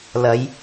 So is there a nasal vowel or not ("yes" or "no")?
no